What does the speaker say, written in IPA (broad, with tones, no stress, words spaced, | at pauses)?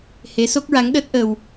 he˧˥so˦˥k̚ɹa˧˥ŋɗəː˦˥t̚ ʔə˧w